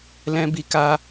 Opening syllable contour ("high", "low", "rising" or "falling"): high